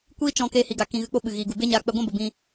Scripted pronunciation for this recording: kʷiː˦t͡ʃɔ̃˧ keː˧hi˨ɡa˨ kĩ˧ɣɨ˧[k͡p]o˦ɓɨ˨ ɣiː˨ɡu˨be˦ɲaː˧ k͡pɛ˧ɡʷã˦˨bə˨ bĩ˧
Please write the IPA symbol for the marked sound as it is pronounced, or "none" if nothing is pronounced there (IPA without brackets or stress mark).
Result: k͡p